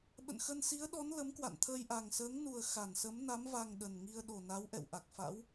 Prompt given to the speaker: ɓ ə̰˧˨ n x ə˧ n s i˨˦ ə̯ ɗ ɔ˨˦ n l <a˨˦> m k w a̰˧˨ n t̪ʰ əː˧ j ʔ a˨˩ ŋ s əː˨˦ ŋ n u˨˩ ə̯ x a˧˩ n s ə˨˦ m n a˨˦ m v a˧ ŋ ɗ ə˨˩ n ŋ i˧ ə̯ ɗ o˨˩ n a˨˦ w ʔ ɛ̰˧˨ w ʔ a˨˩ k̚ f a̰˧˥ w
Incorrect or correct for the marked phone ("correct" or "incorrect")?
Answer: incorrect